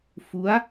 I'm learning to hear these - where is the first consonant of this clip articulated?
lips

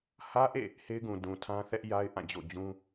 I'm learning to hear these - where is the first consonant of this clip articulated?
throat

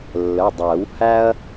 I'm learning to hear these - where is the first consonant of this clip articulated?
tongue tip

